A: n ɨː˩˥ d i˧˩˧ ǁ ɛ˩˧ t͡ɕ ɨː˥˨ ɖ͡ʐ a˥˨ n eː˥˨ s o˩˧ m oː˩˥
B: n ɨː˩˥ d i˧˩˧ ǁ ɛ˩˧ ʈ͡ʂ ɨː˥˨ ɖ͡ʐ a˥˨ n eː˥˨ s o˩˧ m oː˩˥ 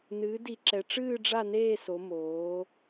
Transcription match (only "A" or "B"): B